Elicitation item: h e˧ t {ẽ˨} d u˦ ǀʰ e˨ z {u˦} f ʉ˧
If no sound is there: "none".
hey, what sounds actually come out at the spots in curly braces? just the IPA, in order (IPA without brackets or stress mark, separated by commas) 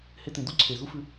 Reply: ẽ˨, u˦